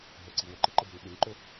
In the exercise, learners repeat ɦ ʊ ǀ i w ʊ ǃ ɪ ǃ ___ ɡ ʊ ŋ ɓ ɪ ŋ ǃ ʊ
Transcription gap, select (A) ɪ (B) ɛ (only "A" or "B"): A